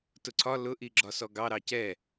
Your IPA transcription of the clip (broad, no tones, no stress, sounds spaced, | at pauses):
t ʊ ǀʰ ɒ l ʊ ʔ i ɡ͡ǁ ɒ s ɔ ɡ ɑ ɾ ɑ c ɛ